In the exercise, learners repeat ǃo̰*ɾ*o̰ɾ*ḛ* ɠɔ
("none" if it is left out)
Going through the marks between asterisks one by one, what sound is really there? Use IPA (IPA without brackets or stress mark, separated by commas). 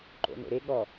n, e